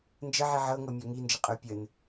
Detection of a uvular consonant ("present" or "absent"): present